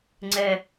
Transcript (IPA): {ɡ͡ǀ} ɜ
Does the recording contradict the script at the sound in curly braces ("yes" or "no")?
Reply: yes